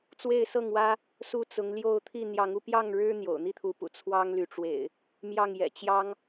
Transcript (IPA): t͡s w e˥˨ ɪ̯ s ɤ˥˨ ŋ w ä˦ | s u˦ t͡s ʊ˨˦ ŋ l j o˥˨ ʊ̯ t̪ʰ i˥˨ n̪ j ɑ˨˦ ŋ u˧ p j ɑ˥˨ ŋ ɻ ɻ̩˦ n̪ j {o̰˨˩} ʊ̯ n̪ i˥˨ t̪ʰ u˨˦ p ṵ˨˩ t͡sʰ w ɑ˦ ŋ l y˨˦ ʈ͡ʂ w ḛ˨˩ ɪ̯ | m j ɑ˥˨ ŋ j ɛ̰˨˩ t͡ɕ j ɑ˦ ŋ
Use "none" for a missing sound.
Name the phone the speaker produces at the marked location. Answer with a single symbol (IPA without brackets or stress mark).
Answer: o̰˨˩